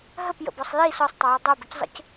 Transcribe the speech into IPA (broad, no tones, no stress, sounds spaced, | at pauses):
ɦ ə p j ə̰ b ɔ sˤ j i s ɔ sˤ tˤ ʊ j ʊ dˤ ɤ b ʊ c zˤ ə̰ c